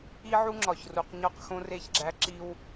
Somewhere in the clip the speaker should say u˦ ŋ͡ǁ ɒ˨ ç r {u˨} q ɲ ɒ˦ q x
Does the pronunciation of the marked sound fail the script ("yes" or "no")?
no